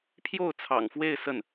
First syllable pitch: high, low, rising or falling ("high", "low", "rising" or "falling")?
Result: falling